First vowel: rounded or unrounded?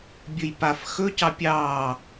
rounded